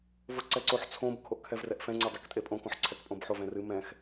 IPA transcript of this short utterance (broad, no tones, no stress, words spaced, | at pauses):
voǀɛǀoħ t͡sʰõb kʰoʔkʰɛvrɛʔfɛ̃ ŋ͡ǀɛdˤektʼepʼõ kõħǀʰɛkpʼõbħov ɛ̃rɨ mɛ̃x